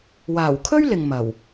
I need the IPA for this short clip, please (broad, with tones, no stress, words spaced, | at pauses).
waː˨˩wkʰɵ˥ɥ lɪ˨ŋ mɐ˨˩w